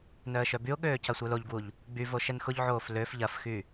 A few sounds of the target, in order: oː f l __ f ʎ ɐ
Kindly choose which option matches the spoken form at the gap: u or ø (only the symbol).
ø